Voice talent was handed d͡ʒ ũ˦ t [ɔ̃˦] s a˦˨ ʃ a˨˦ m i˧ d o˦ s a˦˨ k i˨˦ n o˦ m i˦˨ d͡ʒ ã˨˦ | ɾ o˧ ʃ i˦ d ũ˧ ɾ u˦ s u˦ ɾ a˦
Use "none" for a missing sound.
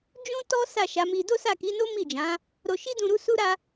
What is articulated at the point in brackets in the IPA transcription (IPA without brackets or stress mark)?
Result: ɔ˦